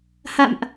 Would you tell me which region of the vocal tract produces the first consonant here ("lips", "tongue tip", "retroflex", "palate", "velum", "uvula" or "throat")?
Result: throat